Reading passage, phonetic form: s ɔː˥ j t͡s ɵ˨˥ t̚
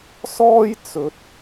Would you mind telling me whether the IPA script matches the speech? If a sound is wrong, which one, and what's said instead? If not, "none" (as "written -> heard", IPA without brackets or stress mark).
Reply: none